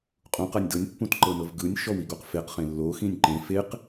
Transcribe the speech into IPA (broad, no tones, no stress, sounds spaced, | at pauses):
qʼ ũ q a nʲ d ɤ nʲ pː ũ t ǃ ɤ n ɤ v ɡ ɯ nʲ ʃ ɔ w i ɡ o q f e q χ ẽ lː o x ĩ nʲ ǃ ẽ f e q